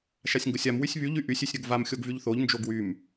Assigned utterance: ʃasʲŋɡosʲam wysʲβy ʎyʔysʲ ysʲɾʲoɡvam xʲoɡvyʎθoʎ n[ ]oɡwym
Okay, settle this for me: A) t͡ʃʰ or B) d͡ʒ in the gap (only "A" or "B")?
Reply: B